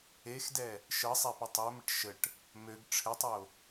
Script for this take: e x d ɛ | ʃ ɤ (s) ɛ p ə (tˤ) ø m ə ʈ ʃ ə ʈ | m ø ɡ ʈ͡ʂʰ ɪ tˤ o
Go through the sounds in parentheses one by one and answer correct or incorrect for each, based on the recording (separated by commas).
incorrect, correct